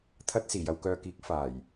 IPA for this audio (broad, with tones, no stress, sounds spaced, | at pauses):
t̪ʰ ɐ˧ t̚ s iː˨˩ j ɐ˨ w k œː˨ k iː˨˥ k̚ f aː˨˩ j